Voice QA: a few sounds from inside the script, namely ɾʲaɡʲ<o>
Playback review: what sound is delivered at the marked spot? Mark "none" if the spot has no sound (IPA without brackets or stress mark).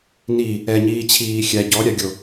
o